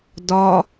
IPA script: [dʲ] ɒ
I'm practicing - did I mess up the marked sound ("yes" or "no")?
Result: yes